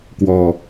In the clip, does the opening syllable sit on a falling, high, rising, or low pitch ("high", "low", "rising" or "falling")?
low